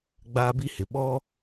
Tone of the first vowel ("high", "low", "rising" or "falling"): high